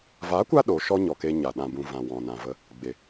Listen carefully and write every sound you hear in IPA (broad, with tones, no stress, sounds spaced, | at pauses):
v a˨˦ kʷ a˧ ɗ o˨˦ ʃ ɔ˦ ɲ ɔ˨ k e˧ ɲ a˨ ɗ ã˨ b ũ˨ v ã˨ w ɔ̃˨ n ã˨ v ə˧ | ɡ͡b e˨